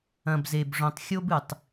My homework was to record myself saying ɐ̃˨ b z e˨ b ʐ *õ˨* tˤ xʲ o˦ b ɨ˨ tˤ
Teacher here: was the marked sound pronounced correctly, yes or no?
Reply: yes